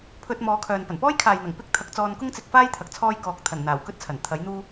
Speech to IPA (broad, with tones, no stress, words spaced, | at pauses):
pʰɵ˧t̚mɔː˨˧kʰœː˨n pɐ˨˩npɔː˥j kʰaː˨jn̪ɐ˨˩ŋ pɪ˥k̚t̪ʰɐ˨˥k̚ t͡sɔː˧nkʊ˥ŋt͡sɪ˨˥k̚faː˥j t̪ʰɐ˨˥k̚t͡sʰɔː˥jkɔː˧k̚ t̪ʰɐ˨˩nn̪aː˨˩w kɵ˥t̚t͡sʰɐ˨˩nt̪ʰɐ˨˥j n̪uː˥